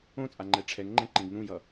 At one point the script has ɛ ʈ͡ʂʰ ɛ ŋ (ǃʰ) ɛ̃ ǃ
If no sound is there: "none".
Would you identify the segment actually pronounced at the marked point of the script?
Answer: ŋ͡ǃ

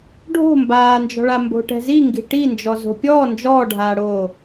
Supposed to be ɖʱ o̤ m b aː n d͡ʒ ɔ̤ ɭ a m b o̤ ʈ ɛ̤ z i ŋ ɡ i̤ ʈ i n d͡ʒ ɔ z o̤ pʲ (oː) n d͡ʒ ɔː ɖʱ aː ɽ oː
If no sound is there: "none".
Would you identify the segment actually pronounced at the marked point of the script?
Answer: ɔː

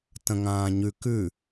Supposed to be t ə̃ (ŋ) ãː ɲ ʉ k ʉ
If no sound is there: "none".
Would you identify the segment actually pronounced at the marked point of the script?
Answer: ŋ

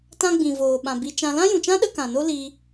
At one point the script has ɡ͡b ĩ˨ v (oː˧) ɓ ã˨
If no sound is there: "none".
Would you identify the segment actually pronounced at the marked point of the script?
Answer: oː˨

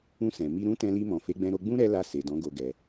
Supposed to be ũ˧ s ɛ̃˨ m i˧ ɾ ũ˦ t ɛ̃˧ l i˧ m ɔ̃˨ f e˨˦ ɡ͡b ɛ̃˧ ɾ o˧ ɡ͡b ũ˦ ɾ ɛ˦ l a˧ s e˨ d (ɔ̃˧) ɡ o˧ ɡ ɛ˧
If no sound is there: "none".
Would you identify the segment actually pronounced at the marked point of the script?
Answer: ɔ̃˨˦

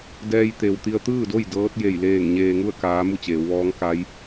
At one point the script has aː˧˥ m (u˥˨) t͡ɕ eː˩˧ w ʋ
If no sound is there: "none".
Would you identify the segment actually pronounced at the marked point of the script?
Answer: u˥˨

